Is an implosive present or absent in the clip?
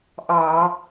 absent